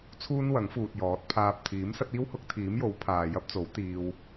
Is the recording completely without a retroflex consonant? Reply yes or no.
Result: yes